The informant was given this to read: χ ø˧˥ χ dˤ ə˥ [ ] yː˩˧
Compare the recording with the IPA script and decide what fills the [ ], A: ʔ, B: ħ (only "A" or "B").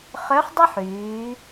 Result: B